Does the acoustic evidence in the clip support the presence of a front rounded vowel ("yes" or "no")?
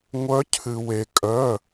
yes